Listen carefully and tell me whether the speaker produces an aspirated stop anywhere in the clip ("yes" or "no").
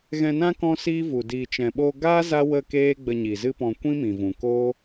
no